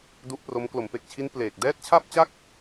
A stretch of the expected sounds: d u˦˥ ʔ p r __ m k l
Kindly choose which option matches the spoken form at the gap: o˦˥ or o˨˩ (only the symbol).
o˦˥